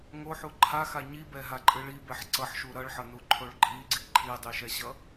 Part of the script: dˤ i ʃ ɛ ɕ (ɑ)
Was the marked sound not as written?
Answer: yes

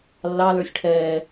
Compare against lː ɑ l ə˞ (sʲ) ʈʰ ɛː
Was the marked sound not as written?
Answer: no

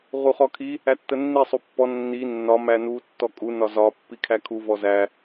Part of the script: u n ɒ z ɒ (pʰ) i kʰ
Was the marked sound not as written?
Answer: yes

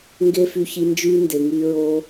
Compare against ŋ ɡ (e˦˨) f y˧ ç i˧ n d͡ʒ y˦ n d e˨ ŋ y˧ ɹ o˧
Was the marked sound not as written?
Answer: yes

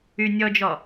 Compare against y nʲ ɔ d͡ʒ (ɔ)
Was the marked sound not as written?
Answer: no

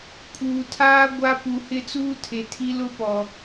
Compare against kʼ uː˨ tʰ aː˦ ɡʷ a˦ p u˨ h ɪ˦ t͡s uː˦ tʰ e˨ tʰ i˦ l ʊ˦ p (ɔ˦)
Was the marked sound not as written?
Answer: yes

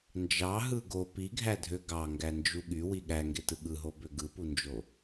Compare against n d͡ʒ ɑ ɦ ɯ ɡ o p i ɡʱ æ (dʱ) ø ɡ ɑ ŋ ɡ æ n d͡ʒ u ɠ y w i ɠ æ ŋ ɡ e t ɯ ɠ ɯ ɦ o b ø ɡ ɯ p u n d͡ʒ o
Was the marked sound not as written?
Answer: no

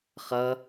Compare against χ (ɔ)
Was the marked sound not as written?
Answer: yes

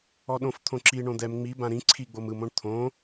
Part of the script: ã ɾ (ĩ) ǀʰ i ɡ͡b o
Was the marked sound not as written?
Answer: no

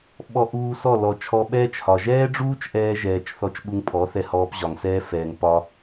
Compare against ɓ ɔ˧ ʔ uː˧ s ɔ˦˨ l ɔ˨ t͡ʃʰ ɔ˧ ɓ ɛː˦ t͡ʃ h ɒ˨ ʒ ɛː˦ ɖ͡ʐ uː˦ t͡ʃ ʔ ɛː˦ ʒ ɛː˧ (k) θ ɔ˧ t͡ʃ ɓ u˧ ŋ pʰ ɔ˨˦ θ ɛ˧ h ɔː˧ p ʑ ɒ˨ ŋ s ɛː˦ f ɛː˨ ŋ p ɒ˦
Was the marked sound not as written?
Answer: yes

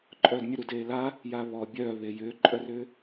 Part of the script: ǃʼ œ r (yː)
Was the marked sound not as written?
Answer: yes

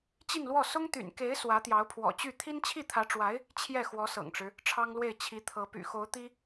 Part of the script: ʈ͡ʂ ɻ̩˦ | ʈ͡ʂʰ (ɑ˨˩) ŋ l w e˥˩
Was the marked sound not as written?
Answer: yes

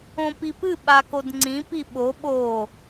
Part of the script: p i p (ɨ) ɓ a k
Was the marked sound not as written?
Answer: no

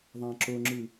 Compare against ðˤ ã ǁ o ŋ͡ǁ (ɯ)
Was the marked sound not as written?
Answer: no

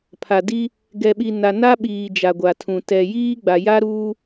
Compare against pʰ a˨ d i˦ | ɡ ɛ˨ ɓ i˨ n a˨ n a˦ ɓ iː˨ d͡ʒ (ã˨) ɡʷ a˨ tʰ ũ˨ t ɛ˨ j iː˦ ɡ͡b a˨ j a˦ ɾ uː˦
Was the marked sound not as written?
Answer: yes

